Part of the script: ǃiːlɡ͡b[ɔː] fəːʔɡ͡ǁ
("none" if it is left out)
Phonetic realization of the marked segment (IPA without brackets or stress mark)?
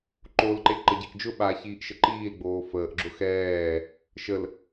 oː